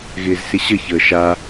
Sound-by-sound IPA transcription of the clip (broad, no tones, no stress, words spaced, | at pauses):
ɣɪːzsɪɕə çəːʃa